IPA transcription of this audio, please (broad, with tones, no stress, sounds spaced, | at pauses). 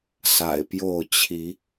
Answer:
s a̰˨˩ ɪ̯ p j o˥˨ ʊ̯ t͡ɕʰ i˨˦